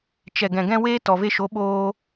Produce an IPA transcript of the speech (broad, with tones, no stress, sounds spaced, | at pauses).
t͡ʃ ɛ˨ ɡ ɛ̃˨ ɡ ɛ̃˧ w eː˦ t ɔ˨ v e˧ ʃ o˨˦ ɓ oː˧